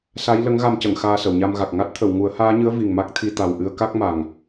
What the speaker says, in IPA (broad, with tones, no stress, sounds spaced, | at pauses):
s a˧˥ j l ə˧˥ ŋ ɣ a˧ m c ə˨˩˨ ŋ x aː˧ s ə˨˩˨ w ɲ a˧ m ɣ a˨˩ k̚ ŋ a˦˥ t̚ t̪ʰ ə˨˩˨ w ŋ u˨˩˦ ə̯ h aː˧˥ ɲ ɨ˧˥ ə̯ v i˨˩ ŋ m a˦˥ k̚ t̪ʰ i˧ t̪ a˨˩ w ʔ ɨ˧ ə̯ k a˦˥ k̚ m a˨˩ ŋ